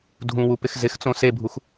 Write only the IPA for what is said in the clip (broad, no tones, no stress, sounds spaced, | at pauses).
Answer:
dʱ ũ w u p ɪ x z ɪ x t͡s õ s e bʱ u x